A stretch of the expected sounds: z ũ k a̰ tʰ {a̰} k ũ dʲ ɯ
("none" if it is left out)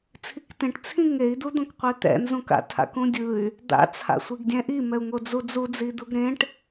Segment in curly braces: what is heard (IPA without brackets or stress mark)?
a̰